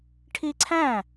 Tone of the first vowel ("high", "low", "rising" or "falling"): high